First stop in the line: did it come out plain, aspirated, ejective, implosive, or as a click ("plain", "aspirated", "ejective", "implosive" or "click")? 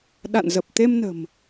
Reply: implosive